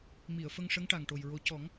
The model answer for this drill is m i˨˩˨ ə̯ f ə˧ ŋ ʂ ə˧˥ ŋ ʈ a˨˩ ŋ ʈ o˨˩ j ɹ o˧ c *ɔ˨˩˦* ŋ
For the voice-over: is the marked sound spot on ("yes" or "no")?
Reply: yes